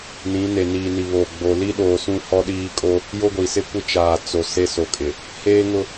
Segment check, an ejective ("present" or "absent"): present